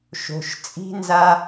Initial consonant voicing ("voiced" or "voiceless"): voiceless